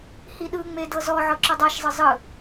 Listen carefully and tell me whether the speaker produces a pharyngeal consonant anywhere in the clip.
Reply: yes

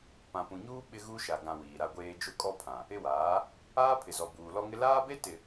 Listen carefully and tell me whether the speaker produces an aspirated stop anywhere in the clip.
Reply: yes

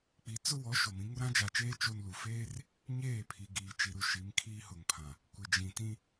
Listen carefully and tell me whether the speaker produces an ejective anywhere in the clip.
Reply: no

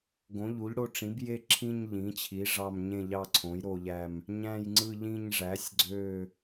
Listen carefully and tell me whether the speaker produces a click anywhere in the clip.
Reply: yes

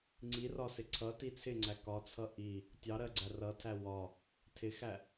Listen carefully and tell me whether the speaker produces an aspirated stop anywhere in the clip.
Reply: yes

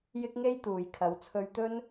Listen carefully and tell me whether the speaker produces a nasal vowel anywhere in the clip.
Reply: no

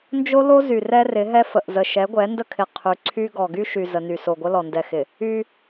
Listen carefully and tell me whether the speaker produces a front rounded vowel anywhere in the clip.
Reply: yes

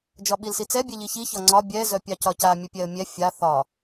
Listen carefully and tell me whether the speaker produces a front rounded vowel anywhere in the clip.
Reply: yes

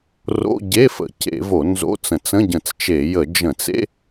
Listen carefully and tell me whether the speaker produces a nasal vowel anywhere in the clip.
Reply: yes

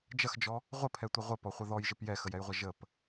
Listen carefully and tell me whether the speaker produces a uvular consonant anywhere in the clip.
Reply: yes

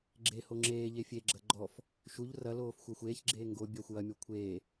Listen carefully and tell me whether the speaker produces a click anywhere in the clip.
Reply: yes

